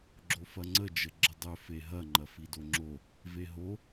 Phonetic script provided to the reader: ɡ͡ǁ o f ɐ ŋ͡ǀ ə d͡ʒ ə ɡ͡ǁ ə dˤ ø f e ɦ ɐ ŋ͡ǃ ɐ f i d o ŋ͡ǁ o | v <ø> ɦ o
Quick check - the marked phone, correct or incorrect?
incorrect